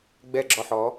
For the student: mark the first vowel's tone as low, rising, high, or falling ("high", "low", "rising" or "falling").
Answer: falling